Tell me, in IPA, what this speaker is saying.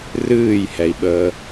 r ɨː j h ɛ i̯ ɓ əː

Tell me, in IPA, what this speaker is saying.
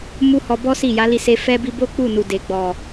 m u˦ h ɔ˧ b ɔ˦ s i˦˨ j a˨˦ l i˧ s e˧ f ɛ˧ b i˧ b o˦ k͡p u˦˨ n u˨ d e˨ ɡ͡b ɔ˨

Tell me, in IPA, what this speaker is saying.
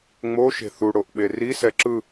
ŋ͡m o ʃ e̤ θ u ɽ o ʔ ɓ e r i s ɛ ǁ ɯ

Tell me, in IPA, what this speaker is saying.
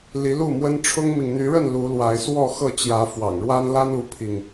l i˨˦ l u˥˨ m w ə˦ n ʈ͡ʂʰ ʊ˦ ŋ m i˨ ŋ n̪ y˨˦ ɻ ə˥˨ n l u˨˦ l w a˨˦ ɪ̯ s w ɔ˥˨ x ɤ˥˨ t͡ɕ j ä˨˦ f w ɑ̰˨˩ ŋ ɻ w a˦ n l a˦ n u˦ pʰ i˨ ŋ

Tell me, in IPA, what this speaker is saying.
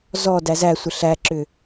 z ɔ d æ z æ sʷ ə ɬ æ ǁ ʏ

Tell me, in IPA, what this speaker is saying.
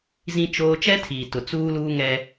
z ĩ˦ t͡ʃ oː˦ t͡ʃ ɛ˦ tʰ iː˨ t ʊ˨ t͡s uː˦ l uː˦ ŋ ɛ˦

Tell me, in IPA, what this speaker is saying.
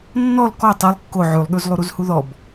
nː ɔ l k ɔ tˤ i lˠ kː o ʕ ʉ lˠ ɠ ʉ z lˠ u ɾ u z h u ð ɔ b

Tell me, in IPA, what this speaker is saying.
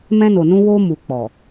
m ɛ̃˧ n o˨ n ũ˧ w o˧ m u˨ k͡p ɔ˨

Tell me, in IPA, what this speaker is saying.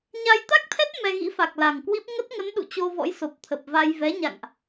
ɲ a˧ j t̪ a˦˥ k̚ t̪ʰ ɛ˦˥ t̚ m ɛ˧ ɣ ḭ˧˥ f a˨˩ k̚ l a˨˩ ŋ k w i˦˥ p̚ ŋ ə˦˥ t̚ ŋ ə˨˦ n ɗ ṵ˧˨ t͡ɕ o˧ v ɔ̰˧˥ j s o˨˩ p̚ t̪ʰ ə˨˩ p̚ v a˧ j v ɛ˨˦ ɲ a̰˧˨ ŋ ʔ

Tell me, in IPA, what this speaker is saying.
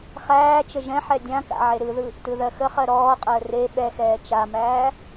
χ æː t͡ʃ ə ʒ ɛ̃ ħ ɛ dʲ ã k a̰ ʕ e ɾ ɯ ð ɯ | t ɯ ð ɜ x ə χ ɜ ɾ ɔː qʼ əː r e ɓ ɛ x ɛː t͡ʃ a m æː

